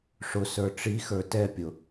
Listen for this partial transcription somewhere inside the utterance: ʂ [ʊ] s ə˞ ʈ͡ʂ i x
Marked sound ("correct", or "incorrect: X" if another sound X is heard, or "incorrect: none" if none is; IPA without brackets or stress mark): correct